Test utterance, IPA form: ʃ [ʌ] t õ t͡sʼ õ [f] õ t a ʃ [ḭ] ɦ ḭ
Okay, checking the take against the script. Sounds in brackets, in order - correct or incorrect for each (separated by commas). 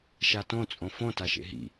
incorrect, correct, incorrect